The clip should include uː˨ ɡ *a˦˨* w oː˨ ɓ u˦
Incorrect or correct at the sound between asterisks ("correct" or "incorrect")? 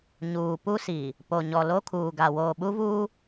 incorrect